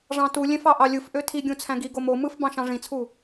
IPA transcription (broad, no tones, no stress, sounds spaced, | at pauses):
ʐ ɑ̃ t u lʲ ẽ f ɑ ʔ ɑ lʲ ɯ f ʔ ø tʰ i ɡʲ ũ t͡sʰ æ̃ ɡ i ɡ o m o m ɯ f b ɑ̃ ʃ ɑ̃ ʐ ĩ t͡sʰ u